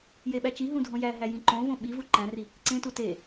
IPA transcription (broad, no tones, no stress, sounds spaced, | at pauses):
j e ɓ æ t͡ʃ i ɦ ũ dʱ õ j æ ɦ æ j ĩ ǃ õ v õ ɓ i v u ǃ æ̃ r i | ǀ ẽ t u t e